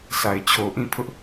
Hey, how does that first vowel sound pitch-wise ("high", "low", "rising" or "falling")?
low